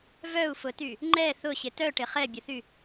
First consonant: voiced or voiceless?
voiced